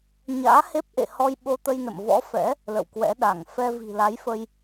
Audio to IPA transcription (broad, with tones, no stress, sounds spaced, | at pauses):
ɲ a̰ː˧˥ h e˦˥ p̚ ʔ ḛ˧˨ h ɔ˧ j ɓ o˧ t̪ ə˧ j n ə̰˧˨ m v ɔ̰˧˥ f ɛ̰˧˥ | l ə̰˧˨ w k w ɛ̰˧˥ ɗ a˧˩ ŋ f ɛ˧ v i̤˨˩ l a˨˦ j f ə˧ j